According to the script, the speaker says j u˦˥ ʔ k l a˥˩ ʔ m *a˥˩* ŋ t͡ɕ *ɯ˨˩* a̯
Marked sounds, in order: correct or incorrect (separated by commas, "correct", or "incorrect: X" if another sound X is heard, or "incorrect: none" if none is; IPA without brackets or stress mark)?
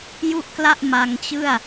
incorrect: a˧, incorrect: ɯ˥˩